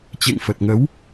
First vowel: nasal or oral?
oral